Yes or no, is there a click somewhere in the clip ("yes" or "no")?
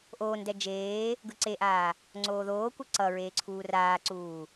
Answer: yes